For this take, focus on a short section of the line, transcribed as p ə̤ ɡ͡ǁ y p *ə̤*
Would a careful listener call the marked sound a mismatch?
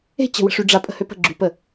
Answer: yes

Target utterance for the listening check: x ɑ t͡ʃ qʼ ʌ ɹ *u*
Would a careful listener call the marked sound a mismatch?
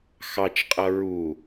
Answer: no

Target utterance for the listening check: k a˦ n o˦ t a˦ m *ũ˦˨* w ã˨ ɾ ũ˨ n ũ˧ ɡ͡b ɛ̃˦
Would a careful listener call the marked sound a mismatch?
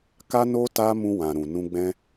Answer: yes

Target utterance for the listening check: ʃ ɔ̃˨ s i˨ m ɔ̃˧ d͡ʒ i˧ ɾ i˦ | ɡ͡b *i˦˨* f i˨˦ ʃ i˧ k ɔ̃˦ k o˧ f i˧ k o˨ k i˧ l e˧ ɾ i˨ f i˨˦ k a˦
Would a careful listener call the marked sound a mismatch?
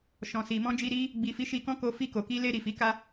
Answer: yes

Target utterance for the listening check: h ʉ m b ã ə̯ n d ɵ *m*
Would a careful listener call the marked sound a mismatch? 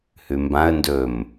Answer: no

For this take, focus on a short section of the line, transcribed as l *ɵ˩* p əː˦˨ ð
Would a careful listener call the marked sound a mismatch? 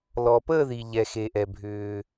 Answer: yes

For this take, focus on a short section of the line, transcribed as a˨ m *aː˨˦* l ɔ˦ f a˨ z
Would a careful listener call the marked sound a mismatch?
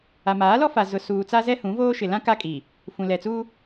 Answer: no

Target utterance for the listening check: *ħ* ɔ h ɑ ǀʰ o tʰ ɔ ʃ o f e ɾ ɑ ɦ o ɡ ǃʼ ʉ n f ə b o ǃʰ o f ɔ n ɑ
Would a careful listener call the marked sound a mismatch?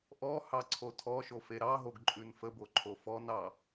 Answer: yes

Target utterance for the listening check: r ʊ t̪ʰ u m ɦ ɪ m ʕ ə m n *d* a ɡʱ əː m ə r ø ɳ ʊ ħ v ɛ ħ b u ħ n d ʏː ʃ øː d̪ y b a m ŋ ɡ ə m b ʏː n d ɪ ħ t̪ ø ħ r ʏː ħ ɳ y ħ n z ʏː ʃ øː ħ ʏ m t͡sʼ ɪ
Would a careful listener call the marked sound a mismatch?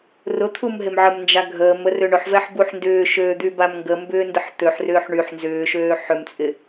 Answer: yes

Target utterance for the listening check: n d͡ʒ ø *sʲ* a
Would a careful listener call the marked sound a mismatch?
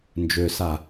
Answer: yes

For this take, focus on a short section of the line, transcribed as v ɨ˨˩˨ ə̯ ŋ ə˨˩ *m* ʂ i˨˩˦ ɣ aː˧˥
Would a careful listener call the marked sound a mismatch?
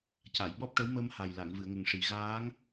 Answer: yes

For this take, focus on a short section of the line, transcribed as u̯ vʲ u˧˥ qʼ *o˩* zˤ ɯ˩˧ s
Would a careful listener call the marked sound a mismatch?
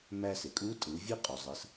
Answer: no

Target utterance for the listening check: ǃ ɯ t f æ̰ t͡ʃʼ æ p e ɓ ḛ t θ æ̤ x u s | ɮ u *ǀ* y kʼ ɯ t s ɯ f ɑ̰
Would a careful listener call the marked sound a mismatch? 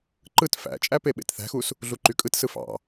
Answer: yes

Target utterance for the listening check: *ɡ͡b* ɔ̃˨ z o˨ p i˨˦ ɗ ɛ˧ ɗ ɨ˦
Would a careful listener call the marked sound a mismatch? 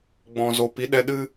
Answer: no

